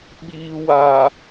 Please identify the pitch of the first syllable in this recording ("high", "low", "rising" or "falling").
low